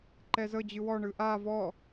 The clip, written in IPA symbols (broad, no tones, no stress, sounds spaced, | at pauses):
ǃ ɛ z ɤ d͡ʑ ɯ w ɔ ɳ ɯ ʔ a v ɔ